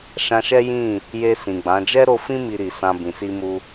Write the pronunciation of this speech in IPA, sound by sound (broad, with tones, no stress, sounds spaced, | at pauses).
ʃ ã˧ ʃ ɛ˦ j ĩ˦˨ | j e˧ s ĩ˨ ɡ͡b ã˨˦ d͡ʒ ɛ˦ ɾ o˧ f ĩ˦ m i˧ ɾ i˨ s ã˧ b ĩ˨ s i˧ m u˧